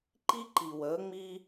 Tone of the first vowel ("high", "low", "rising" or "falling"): high